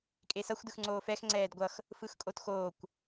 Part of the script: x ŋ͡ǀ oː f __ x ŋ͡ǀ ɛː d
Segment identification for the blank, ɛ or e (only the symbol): ɛ